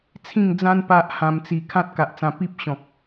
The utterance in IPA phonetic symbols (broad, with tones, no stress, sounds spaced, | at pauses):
t͡sʰ ĩ˥˧ ŋ d͡z ã˦ n p a˦ ʔ h ã˧ m t͡s i˧ kʰ ã˦ t̚ k a˨ ʔ t͡s ã˧ p i˦ p̚ ɕ ɔ̃˨ k̚